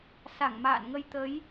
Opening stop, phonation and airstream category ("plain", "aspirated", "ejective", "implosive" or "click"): plain